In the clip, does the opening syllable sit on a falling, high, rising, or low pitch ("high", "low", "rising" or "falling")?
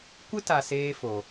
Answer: high